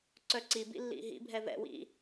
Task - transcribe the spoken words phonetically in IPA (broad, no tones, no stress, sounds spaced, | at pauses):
ǀ œ ǀ i b ḭ lː ḭ ɦ ḭ bʱ ɛ v ɛ̰ w ḭ